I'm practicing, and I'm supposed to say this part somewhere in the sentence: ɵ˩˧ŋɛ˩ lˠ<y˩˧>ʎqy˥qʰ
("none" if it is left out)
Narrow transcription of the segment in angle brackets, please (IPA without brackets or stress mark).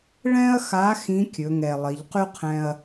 i˩˧